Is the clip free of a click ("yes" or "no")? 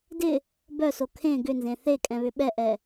yes